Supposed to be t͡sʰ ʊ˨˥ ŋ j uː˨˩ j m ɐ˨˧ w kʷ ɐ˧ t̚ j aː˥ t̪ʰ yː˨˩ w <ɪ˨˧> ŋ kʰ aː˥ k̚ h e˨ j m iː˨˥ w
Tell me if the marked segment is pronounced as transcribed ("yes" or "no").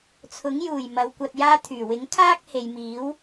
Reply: no